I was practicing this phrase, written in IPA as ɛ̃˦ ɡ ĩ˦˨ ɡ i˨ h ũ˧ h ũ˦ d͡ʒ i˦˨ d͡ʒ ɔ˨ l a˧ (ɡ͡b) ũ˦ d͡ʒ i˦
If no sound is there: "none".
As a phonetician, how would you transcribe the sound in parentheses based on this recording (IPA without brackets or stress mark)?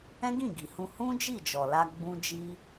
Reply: ɡ͡b